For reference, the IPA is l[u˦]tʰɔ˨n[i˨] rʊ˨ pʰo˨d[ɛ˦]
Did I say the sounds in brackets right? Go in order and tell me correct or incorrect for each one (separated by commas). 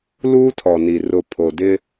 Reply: incorrect, correct, incorrect